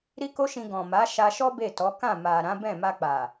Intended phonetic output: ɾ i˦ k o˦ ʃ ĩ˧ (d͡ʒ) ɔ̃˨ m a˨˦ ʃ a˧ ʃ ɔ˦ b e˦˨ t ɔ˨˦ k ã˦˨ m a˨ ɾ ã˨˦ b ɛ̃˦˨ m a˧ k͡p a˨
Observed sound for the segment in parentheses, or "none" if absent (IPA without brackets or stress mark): ɡ